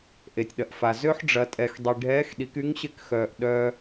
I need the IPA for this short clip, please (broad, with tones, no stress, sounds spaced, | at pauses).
ʔ e˩ tʲ ɗ ɐ˩ ʔ f a˩ z ø˥ ħ ɖ͡ʐ ɐ˩˧ tʼ ɛ˩ x dˤ i˩ ɖʱ ɛː˧˥ x ɗ i˩˧ k y˧˥ ŋ ɕ ɪ˧˥ k x œː˩ ʔ ɗ œ˧